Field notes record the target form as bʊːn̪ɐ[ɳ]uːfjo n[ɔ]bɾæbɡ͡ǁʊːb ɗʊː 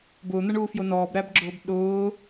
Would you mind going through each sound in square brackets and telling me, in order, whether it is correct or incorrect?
correct, incorrect

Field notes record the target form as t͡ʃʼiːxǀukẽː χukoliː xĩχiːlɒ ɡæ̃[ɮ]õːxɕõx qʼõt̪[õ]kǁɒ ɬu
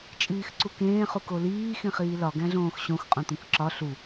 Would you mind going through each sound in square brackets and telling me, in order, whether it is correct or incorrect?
correct, incorrect

